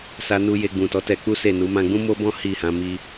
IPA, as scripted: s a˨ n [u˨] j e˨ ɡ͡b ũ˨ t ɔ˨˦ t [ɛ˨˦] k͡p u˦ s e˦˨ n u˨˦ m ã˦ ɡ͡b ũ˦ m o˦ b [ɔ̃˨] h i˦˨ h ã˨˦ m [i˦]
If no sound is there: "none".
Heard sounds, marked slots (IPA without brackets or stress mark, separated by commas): u˨, ɛ˧, ɔ̃˦, i˦